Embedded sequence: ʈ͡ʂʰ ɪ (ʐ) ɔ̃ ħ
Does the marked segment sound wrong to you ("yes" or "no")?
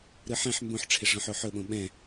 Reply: no